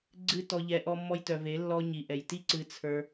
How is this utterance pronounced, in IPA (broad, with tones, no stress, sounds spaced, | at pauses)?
ɡ͡ǀ ɨ˦ t ɔ˧ ʎ ɛ˧ ʔ ɔ˦ mː ɔ˦ j t œ˧ v e˨˦ lː ɔ˧ ɲ i˨ ʔ ɛ˨ j t i˦ ǀ ɨ˧ t͡sʰ ə˞˧